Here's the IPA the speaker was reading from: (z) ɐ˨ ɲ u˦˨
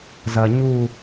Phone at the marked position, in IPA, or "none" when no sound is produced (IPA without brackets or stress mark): z